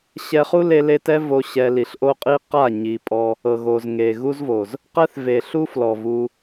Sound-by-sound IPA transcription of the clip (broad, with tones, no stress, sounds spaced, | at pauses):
ɕ ɛ˧ χ u˦ l e˧ l e˦ t ɛ˦ v o˦ ɕ ɛ˧ l i˨˦ ɬ ʔ o˧ qʼ i˧ q a˦˨ ɲ i˨ pʼ ɔ˧ | ɤ˨ ɣ o˨ z ŋ e˨ ɣ u˦ z v o˨ z | q ɛ˦ θ v e˨ ɬ u˦ f l ɔ˨ v u˧